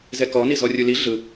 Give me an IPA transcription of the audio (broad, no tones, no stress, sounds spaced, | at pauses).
z ɛ k ɔ n i z ɔ rʲ u l i ɮ ɯ